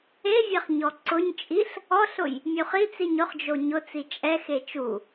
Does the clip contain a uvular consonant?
yes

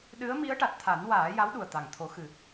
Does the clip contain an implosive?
yes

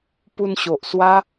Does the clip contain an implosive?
no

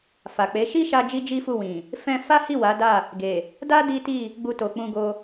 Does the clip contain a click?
no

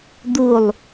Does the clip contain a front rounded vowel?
no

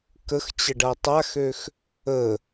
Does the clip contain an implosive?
no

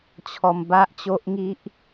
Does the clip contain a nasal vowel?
no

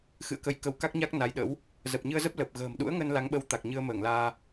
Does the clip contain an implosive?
yes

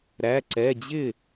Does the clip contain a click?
yes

